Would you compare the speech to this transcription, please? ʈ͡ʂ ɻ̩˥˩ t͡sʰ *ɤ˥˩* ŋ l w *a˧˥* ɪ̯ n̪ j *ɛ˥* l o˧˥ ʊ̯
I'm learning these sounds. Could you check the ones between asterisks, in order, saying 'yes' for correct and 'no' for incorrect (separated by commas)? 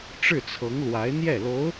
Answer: no, yes, no